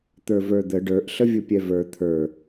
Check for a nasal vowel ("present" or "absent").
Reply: absent